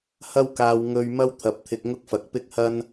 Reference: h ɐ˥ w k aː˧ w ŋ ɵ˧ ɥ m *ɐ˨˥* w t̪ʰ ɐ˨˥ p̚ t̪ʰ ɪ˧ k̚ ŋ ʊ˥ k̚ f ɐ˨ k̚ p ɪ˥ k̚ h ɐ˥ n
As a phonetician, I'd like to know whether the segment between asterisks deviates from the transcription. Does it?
yes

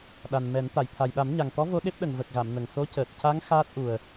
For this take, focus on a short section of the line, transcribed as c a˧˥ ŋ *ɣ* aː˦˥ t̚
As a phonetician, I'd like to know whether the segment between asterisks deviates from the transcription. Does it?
yes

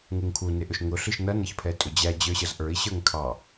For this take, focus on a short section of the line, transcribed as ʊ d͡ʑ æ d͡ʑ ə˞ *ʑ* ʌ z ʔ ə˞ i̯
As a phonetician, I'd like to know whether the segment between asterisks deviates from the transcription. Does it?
yes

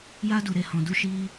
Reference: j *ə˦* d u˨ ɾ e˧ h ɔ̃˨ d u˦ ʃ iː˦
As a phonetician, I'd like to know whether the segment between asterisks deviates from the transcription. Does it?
yes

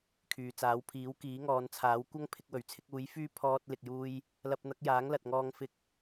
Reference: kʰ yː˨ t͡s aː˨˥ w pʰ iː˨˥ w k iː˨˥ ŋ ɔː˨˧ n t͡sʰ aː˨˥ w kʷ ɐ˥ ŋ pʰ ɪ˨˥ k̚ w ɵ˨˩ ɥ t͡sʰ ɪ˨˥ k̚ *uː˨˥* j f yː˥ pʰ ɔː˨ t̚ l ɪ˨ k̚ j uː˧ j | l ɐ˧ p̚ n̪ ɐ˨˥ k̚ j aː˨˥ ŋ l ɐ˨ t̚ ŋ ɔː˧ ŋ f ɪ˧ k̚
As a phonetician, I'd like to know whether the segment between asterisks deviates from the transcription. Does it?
no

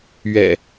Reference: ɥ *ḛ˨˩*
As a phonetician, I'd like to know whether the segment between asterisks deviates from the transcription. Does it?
yes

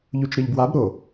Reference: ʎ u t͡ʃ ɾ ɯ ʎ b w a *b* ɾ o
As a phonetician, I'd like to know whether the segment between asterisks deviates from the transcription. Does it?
no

